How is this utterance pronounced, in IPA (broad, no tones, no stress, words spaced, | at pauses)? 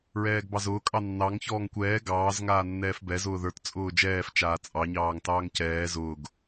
ɹɛːɡbɑzʊː kʼɑnːɑŋ çɔːŋkʷɛː ɡɑːz ŋaːnːɛːfbɛz ʊːðə˞t t͡sʼʊːd͡ʒɛːf t͡ʃaːt͡sʼɑ ɲɑːŋtɑːŋcɛː zʊːɡ